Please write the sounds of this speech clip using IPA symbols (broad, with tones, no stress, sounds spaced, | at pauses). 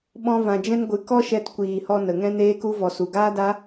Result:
ɓ ɔ̃˧ v ã˨ d͡ʒ ɛ̃˦ n ɡʷ ɨ˧ k ɔ˦ ʃ ɛ˧ t kʷ iː˨ h ɔ˧ n ə˨ ŋ ɛ̃˦ n eː˦ k u˦ v ɔ˨ s u˨ ɡ aː˦ d a˦